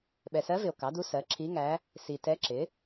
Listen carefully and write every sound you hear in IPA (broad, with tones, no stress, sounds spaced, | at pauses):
ɓ ɛ˨ s ɜ˧˥ v ɪ˨ o̯ k ɑ˩˥ d u˧˥ s ɜ˩˥ ǁʰ i˧˥ ŋ æ˧˥ | s i˨ t ɛ˧˥ ǁ ɪ˩˥